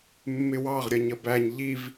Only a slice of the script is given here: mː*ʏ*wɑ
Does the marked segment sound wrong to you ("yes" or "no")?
yes